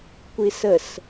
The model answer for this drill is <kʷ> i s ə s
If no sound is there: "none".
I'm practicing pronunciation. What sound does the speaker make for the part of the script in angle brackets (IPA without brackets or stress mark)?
kʷ